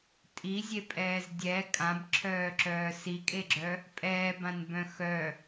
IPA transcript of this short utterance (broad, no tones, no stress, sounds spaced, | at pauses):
tʼ i zʲ e pʼ ɛː z dʲ ɛ kʼ ã b ǁʰ œː ǁ œː s i kʼ e ɡ͡ǁ œ | pʼ ɛː b ã n b œ̃ x œ